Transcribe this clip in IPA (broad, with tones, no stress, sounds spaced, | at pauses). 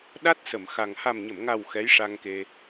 ɗ a˦˥ t̚ s ə˨˩˨ m x a˨˩ ŋ h a˨˩ m ɲ ə˨˩˨ m ŋ a˨˩ w x ɛ˧˥ j ʂ a˧ ŋ k e˧